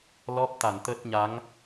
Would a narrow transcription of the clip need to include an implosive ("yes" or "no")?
no